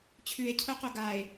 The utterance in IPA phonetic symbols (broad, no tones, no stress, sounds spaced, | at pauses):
t͡ɕʰ ʉ e̯ cʰ o q o ɡ a e̯